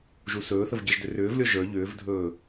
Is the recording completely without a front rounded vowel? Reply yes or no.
no